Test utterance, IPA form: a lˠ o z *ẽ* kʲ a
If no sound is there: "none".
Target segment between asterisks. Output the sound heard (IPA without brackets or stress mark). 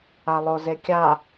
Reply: e